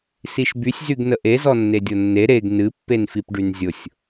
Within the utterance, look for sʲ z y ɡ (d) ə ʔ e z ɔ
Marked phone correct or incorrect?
incorrect